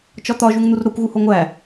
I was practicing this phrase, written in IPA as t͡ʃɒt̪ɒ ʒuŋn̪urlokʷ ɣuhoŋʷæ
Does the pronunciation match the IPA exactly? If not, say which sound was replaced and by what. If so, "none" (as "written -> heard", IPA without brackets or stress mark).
l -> ɾ